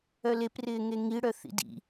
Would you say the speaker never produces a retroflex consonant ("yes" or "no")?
no